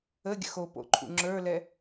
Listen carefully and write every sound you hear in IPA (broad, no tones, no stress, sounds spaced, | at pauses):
ə ɡʲ ə̰ x o p o̰ ǃʰ ṵ ŋ͡ǁ ə˞ l ɛ